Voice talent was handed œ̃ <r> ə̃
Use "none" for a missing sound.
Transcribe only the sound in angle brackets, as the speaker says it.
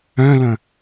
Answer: l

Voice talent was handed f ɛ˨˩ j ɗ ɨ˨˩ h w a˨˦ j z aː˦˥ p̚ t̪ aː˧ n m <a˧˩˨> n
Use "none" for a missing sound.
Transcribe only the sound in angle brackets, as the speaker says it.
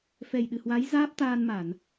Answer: a˧˩˨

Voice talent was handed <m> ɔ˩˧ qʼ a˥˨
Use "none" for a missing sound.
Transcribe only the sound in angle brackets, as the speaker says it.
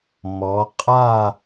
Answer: m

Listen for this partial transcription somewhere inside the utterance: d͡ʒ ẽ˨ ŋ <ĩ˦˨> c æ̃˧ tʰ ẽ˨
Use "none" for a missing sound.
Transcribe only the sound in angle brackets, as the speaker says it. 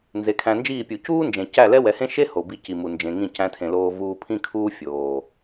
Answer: ĩ˦˨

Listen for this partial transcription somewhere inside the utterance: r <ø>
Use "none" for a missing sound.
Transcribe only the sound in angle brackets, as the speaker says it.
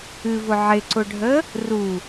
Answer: u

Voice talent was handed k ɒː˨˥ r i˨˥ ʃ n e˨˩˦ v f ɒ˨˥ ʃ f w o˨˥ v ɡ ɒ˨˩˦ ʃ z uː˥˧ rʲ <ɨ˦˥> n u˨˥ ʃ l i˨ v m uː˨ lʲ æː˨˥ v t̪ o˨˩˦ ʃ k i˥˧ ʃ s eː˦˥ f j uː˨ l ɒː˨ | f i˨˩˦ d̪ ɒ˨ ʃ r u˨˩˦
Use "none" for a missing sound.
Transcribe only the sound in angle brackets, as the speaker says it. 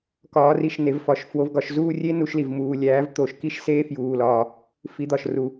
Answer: e˦˥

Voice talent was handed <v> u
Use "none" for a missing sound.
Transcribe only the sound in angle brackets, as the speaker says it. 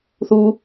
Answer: θ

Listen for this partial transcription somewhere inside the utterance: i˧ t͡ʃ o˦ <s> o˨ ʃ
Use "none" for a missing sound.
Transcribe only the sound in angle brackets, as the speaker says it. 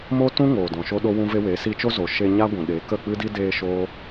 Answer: z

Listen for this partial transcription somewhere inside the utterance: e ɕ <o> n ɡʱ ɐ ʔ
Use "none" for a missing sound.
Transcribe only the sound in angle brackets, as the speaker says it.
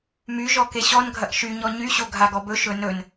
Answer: ɔ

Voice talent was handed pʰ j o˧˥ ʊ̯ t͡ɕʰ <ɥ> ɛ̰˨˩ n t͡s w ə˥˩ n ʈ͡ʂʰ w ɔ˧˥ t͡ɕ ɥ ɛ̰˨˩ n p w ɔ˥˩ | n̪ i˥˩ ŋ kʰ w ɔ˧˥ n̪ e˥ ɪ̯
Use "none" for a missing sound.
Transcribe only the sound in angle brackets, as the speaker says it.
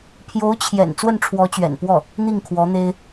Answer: j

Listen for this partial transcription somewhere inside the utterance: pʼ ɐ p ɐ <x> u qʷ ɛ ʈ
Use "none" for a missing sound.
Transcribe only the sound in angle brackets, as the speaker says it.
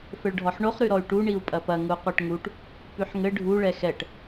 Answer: ŋ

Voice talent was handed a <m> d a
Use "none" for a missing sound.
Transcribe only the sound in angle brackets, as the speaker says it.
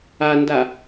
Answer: n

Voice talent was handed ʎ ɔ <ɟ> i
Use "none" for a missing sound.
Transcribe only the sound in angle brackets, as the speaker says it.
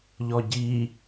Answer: ɟ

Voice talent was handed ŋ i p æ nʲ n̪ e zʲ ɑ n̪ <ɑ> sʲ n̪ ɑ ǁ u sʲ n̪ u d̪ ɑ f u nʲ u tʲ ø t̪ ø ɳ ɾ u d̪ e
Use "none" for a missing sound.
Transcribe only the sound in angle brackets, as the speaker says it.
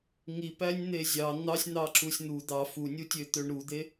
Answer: ɑ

